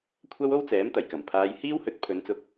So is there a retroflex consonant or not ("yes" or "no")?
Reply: no